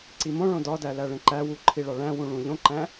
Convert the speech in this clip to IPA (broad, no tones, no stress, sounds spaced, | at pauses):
ǀ i m õ ɭ õ d ɒ d æ l æ ɭ ẽ ǃ æ w u ǃʰ i ɭ ɒ ɭ æ̃ w ũ ɭ ũ ʎ õ ǃ æ̃